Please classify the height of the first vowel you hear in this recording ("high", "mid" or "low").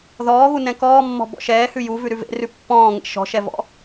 mid